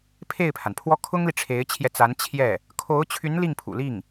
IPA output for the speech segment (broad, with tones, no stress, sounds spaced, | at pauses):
pʰ e˥˩ ɪ̯ pʰ a˩ n pʰ w ɔ˥ kʰ ʊ˥ ŋ l i˨ ʈ͡ʂʰ e˧˥ ɪ̯ t͡ɕʰ j ɛ˧ t͡s a˧˥ n t͡ɕʰ j ɛ˥˩ | kʰ o˧˥ ʊ̯ t͡ɕʰ y˧˥ n l i˥˩ ŋ pʰ ṵ˨˩ l i˥˩ ŋ